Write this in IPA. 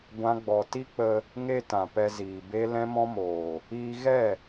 ɡʷ ã˦ ɡ͡b ɔ˧ t i˦ k͡p ə˧ | ŋ e˧ t ã˨ p ɛ˧ z iː˨ b e˦ l ɛ̃˦ m ɔ̃˦ m oː˨ | iː˧ ɣ ɛ˦˨

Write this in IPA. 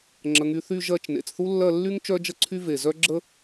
ŋ͡ǁ ə˩˧ ŋ y˩˧ θ y˥˧ ʒ ɜ˥˧ t͡ʃ n ḛ˩˧ t͡s θ u˥ lː ɜ˥˧ lː y˥ ŋ t͡ʃ œ˥ d͡ʒ ə˥ ǀʰ y˥ v e˧˩ z œ˥ ɡ͡ǁ ə˥

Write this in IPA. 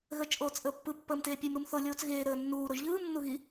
ɣ əː t͡ʃ ʔ oː t͡s ʔ əː pː ɯ pː əː m t eː pʲ e m ɾ u m θ o lʲ oː t͡s ɣ eː ɾ əː nː uː ɾ o ʒ ʎ ɯː m nː u ɣ i

